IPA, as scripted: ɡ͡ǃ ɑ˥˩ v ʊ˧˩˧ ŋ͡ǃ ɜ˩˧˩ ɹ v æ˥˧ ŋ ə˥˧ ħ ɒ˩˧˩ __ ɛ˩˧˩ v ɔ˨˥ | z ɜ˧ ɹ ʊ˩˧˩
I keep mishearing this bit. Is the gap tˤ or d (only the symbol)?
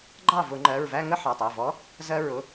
tˤ